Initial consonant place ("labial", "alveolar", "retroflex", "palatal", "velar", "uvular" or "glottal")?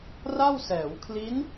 alveolar